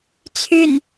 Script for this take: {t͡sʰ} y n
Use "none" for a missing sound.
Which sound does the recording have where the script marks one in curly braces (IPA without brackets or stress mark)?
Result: t͡sʰ